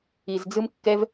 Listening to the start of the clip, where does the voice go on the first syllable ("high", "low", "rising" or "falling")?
low